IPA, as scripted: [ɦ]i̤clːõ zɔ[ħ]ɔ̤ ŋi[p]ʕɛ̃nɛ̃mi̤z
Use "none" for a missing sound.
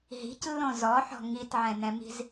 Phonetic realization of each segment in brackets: ɦ, ħ, t

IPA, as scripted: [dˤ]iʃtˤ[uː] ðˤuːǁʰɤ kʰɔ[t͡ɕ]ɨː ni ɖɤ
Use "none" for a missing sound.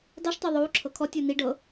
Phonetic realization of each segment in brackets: dˤ, u, tʲ

